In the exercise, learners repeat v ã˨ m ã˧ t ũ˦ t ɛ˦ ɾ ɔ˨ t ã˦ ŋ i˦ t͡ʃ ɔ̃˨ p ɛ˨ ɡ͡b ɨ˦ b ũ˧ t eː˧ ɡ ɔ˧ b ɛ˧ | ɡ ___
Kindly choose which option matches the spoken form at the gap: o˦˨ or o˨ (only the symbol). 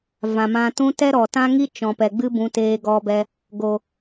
o˨